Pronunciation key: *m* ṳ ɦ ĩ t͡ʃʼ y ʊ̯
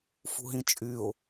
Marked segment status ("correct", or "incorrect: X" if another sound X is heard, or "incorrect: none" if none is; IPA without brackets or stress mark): incorrect: f